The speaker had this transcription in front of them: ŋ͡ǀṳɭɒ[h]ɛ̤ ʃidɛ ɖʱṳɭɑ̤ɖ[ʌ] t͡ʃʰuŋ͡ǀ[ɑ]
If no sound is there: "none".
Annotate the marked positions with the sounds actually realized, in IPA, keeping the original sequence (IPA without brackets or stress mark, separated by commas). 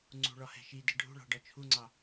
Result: h, ɒ, ɑ